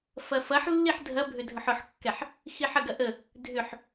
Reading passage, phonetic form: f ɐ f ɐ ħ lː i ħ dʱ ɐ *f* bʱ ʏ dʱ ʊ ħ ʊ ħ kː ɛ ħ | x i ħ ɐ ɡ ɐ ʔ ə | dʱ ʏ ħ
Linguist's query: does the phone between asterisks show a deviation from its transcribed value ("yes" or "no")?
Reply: yes